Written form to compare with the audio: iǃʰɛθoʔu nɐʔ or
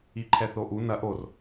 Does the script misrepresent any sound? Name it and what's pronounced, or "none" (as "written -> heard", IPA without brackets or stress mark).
none